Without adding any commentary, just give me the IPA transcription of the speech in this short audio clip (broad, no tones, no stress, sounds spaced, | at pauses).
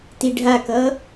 t i ɖʱ a k ʌ